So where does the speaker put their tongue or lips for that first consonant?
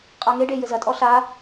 uvula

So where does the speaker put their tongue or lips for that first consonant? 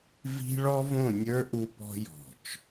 lips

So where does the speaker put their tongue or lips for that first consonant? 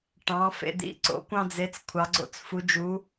retroflex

